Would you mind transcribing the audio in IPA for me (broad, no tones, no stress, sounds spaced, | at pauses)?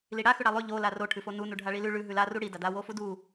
l i ɽ a x ʉ ɽ a lˠ ʉ ʎ o l a r o ʈʰ ʉ f o n u n u ɖʱ a ɭ i l ʉ ɭ ʉ ɦ ʉ l a r u ɽ i d a d a w o f u d u